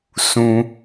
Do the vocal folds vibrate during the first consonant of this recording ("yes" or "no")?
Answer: no